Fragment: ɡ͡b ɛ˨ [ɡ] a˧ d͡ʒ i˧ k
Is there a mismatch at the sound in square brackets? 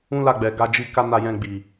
no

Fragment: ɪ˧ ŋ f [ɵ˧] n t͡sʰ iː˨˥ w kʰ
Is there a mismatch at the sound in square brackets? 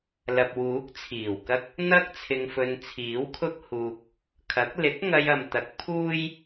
no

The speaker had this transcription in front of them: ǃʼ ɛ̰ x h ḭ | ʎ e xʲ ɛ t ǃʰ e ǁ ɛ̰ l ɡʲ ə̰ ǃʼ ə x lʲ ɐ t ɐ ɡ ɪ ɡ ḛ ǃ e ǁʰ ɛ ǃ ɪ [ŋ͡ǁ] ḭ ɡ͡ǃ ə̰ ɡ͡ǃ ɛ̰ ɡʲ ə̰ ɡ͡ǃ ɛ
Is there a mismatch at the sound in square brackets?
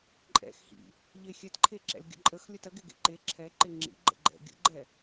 no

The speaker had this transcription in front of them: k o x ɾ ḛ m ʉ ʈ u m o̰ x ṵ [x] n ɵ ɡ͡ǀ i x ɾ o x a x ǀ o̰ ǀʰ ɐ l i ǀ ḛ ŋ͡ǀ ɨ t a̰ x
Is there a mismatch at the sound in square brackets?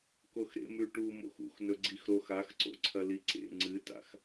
no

